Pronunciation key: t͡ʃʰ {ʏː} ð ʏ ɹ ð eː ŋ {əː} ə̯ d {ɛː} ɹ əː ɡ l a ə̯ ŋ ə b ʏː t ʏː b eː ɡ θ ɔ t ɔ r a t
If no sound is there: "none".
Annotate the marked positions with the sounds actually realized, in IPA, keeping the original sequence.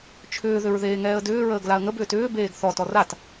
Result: ʏː, ɛː, ʏː

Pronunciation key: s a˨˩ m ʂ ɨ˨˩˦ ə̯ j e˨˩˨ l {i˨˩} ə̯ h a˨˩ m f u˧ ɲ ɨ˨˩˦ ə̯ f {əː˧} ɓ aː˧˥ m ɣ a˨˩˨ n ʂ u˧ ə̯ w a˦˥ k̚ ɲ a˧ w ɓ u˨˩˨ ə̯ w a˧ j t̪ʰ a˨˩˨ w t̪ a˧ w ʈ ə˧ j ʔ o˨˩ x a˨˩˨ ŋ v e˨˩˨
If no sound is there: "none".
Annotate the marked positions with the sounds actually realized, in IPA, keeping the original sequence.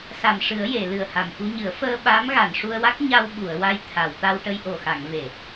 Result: ɨ˨˩, əː˧

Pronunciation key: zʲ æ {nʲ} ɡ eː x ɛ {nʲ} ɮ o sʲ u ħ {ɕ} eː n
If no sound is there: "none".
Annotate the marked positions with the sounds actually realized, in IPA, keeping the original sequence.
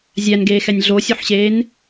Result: n, nʲ, ɕ

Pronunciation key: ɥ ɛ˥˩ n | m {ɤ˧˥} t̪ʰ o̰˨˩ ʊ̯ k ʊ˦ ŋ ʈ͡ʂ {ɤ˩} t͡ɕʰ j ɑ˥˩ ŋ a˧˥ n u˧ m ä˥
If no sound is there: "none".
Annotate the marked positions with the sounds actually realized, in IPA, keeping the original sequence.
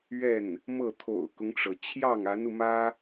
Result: ɤ˥˩, ɤ˩

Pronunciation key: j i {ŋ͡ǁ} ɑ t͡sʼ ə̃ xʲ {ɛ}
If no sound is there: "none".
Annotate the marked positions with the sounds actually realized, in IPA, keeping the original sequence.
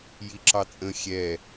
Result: ǁ, ɛ

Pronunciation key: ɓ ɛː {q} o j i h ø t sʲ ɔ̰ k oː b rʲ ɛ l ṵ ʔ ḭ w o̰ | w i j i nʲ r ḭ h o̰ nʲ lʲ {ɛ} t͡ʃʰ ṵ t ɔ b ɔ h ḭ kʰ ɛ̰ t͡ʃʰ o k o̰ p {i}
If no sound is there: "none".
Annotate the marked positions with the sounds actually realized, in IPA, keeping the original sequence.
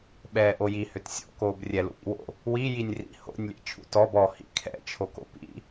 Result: ʔ, ɛ̰, ḭ

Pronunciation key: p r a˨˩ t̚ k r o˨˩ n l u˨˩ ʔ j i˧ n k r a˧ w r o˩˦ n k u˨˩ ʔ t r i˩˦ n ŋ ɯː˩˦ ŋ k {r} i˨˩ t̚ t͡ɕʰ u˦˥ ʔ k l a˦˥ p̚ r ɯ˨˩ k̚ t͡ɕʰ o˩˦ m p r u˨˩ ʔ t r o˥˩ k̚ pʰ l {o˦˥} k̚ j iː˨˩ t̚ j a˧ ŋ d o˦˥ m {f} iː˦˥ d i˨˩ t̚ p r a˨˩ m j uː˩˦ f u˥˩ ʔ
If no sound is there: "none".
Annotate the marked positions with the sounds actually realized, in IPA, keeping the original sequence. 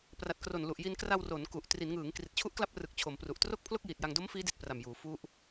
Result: r, o˥˩, f

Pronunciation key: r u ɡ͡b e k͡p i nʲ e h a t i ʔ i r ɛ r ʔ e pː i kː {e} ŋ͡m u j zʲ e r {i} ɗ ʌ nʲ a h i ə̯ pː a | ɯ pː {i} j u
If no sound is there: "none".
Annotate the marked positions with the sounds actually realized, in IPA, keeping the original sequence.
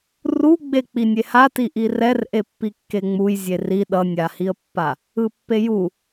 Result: e, i, e

